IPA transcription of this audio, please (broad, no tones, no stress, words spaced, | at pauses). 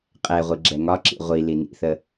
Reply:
qʼɛʁʷi ɡ͡ǁɛŋɒǁḭ ʁʷi linḭθə